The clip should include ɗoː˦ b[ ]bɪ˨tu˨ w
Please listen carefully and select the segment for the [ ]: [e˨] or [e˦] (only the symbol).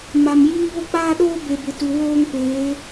e˨